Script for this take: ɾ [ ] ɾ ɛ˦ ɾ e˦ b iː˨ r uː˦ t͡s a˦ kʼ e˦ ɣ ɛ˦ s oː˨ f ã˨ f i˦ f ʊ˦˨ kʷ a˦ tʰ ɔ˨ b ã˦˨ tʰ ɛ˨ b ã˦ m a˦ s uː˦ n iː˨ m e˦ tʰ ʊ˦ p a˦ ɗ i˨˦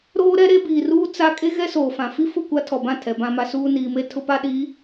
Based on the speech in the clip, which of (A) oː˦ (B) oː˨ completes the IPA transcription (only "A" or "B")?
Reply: A